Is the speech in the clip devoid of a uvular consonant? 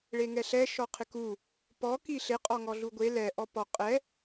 no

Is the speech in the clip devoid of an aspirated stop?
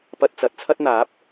no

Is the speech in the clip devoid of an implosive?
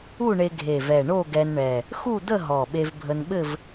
no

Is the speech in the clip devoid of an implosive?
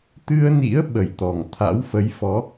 no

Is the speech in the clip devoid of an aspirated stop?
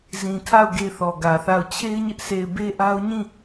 no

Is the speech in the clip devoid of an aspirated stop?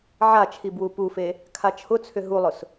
no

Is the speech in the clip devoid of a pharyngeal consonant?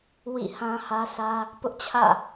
yes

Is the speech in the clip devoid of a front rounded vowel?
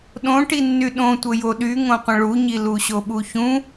no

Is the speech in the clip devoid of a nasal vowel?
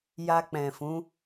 no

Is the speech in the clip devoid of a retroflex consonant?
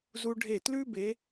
no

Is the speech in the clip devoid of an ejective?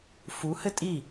no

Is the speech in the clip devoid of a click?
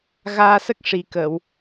yes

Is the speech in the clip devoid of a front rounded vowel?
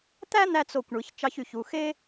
no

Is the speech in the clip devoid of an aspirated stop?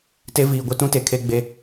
no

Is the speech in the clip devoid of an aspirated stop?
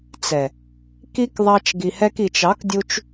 yes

